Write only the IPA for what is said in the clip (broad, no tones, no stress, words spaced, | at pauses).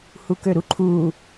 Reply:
hukøɾuǃʰu